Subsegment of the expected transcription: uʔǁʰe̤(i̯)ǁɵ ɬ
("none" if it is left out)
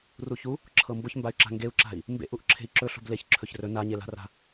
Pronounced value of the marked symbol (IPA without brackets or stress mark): i̯